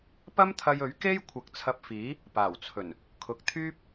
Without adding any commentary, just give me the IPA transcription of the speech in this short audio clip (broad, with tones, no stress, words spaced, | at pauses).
pɐ˥mt̪ʰɐ˧jɵ˨˥ɥ ke˥j kʷʰɐ˨˥k̚t͡sʰɐ˧p̚fiː˨˥ | paː˨˩wt͡sʰɵ˨˩n | kʰʊ˨k̚t̪ʰyː˥p̚